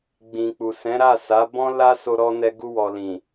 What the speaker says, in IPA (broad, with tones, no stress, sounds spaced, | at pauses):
ɡ͡b ĩ˨ k͡p u˨ s ɛ̃˨˦ ɾ a˦˨ s a˨˦ b ɔ̃˦ l a˦ s o˧ ɾ ɔ˧ n ɛ˧ ɡ u˧ w ɔ˨ l ĩ˨